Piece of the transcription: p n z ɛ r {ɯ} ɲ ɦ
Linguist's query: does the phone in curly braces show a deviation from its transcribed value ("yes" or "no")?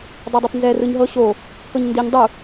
no